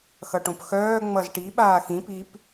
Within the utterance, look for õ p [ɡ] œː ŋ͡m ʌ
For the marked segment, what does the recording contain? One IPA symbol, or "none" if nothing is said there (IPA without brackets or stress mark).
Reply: x